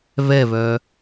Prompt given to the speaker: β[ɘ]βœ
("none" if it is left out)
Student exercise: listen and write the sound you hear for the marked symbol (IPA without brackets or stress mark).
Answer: ɛ